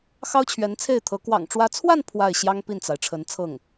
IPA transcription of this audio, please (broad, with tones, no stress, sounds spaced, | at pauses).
x ɑ˥ ʊ̯ t͡ɕʰ ɥ ɛ˧˥ n t͡sʰ e˥˩ ɪ̯ t̪ʰ ɤ˧˥ k w ɑ̰˨˩ ŋ ʈ͡ʂ w ä˧˥ t͡sʰ w a˥˧ n pʰ w a˥˩ ɪ̯ ɕ j ɑ˥ ŋ p i˥˩ n t͡s a˩ ɪ̯ ʈ͡ʂʰ ə˧˥ n t͡sʰ ɤ˥˩ ŋ